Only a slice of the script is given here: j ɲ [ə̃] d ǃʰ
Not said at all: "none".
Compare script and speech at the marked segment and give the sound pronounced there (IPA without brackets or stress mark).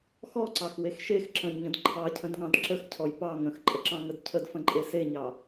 ə̃